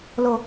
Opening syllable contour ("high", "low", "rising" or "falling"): high